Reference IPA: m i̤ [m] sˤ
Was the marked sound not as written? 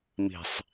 yes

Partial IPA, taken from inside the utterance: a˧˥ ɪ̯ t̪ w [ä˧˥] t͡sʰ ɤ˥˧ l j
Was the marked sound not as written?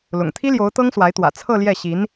yes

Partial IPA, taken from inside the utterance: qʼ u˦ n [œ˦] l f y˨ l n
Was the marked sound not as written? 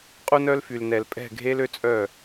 no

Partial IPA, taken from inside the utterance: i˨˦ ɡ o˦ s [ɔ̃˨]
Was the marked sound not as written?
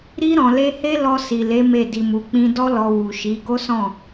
yes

